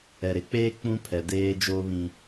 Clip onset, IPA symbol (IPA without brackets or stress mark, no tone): ɛ